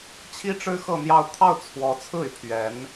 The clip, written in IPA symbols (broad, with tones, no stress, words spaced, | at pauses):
t͡ɕʰi˥ʈ͡ʂɻ̩˥ xɤ˥˧n̪jɑ˥˧ʊ̯ t̪ʰɑ˥˩ʊ̯t͡sʰwɔ˧˥t͡sʰɹ̩˥˩y˩ pʰɥɛ˧˥n